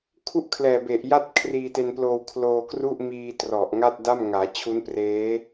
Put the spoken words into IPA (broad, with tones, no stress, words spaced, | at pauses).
kʰu˥˩ʔkʰlɛː˨˩be˨˩ʔ ja˥˩t̚kʰriː˧te˧nploː˧w kʰloː˧kru˥˩ʔmiː˧ trɔ˨˩ʔŋa˥˩t̚ da˥˩mŋaː˩˦ t͡ɕʰu˦˥n preː˦˥